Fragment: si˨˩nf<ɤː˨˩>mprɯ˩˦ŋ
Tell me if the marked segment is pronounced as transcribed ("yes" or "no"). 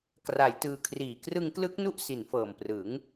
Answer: yes